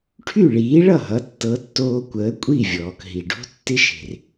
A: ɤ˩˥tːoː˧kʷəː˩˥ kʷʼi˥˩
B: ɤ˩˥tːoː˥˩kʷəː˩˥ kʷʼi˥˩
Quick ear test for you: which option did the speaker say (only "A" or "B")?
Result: A